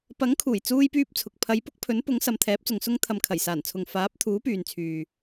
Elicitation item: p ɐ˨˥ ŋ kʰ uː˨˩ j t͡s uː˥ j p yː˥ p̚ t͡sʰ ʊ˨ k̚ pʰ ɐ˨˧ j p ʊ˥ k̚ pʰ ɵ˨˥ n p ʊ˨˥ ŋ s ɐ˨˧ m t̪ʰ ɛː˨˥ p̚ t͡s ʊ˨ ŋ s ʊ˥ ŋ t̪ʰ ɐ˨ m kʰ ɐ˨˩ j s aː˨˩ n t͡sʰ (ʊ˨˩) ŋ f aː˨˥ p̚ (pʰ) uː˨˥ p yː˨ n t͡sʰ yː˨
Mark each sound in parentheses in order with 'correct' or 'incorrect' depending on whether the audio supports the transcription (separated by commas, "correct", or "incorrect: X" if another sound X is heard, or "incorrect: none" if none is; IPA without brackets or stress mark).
incorrect: ʊ˨, incorrect: t̪ʰ